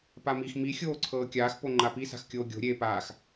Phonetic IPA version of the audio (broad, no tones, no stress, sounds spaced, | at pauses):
p a m i x m i xʲ oː ǀʰ ɤː kʲ aː x p o ŋ͡ǃ a p i s a̤ x kʲ oː ɡʲ o̤ ɾʲ e p aː x